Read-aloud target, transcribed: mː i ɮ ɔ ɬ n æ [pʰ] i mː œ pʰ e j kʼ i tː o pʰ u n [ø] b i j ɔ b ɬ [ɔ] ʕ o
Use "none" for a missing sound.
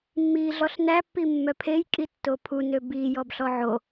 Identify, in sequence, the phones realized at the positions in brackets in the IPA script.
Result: pː, ø, ɔ

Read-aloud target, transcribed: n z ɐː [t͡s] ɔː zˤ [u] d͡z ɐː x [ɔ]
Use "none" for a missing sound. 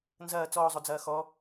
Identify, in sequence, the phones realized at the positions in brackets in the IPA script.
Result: t͡s, o, ɔ

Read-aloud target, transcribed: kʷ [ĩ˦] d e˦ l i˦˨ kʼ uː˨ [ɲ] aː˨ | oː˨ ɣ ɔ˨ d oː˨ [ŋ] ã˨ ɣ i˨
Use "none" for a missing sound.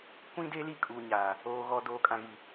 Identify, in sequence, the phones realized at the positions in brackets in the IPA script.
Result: ĩ˦, ɲ, kʼ

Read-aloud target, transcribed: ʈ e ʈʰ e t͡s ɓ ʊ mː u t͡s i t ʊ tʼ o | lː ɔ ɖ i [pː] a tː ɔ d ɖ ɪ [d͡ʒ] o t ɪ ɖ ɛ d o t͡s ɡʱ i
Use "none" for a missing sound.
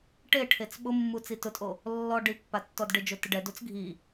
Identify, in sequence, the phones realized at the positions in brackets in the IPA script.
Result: pː, d͡ʒ

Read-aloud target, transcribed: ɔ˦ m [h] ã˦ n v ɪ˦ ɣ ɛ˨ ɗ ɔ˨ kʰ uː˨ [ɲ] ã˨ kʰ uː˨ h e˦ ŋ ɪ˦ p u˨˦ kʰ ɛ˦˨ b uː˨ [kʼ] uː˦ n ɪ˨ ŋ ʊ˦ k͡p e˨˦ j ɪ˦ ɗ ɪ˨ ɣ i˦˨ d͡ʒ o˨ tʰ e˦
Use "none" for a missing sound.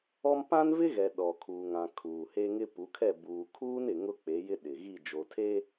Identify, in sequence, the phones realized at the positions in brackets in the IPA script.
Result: p, ŋ, kʰ

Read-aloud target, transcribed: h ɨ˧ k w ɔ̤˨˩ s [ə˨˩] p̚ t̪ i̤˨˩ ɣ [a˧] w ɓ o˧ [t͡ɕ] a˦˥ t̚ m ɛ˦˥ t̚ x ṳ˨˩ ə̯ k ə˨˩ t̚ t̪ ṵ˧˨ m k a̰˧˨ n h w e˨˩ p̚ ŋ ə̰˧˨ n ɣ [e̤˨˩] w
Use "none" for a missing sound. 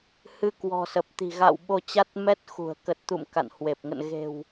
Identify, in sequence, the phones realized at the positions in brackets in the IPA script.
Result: ə˨˩, a̰˧˨, t͡ɕ, e̤˨˩

